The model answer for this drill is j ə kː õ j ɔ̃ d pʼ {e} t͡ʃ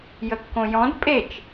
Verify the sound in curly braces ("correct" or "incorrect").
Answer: correct